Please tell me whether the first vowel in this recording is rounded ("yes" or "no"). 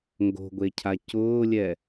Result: yes